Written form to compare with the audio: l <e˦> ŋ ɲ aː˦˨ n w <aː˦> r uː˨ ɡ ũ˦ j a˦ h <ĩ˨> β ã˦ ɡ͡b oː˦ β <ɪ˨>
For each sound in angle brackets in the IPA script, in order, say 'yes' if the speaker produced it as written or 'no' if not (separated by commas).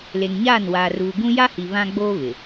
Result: no, no, no, yes